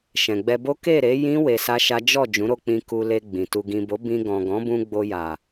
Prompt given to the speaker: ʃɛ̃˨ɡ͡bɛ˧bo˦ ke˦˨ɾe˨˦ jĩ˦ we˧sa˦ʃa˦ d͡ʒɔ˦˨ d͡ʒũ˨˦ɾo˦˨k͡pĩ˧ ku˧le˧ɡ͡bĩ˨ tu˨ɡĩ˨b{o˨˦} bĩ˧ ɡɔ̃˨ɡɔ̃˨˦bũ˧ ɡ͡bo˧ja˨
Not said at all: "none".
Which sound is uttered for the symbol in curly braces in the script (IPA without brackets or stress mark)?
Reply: o˨˦